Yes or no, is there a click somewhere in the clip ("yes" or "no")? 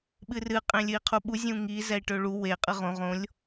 no